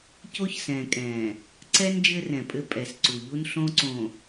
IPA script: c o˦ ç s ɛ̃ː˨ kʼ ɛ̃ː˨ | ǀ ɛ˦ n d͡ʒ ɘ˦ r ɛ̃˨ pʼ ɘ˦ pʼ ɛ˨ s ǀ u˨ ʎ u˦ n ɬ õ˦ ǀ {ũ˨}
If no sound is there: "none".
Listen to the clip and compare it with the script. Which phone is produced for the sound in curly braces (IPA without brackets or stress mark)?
õ˨